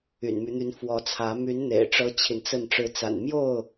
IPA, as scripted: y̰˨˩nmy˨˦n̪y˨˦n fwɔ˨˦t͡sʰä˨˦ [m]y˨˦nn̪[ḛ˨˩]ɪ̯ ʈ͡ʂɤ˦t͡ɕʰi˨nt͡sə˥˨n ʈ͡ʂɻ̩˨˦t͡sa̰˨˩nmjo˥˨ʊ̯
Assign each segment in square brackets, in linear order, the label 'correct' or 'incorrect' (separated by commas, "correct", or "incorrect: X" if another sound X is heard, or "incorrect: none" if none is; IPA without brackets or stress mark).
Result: correct, correct